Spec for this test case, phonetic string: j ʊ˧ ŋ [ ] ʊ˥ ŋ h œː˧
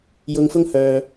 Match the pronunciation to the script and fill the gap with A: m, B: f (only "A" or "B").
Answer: B